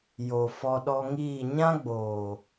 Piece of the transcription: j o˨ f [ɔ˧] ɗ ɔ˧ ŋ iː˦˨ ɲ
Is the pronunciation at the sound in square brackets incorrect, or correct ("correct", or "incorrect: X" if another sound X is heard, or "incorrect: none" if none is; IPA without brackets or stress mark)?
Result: correct